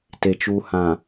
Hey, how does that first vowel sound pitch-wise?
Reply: low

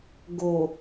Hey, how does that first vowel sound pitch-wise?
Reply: low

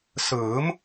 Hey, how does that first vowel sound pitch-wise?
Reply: rising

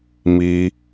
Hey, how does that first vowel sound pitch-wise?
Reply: high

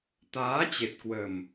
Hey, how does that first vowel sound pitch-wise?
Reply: rising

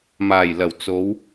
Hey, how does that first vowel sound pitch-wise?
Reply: low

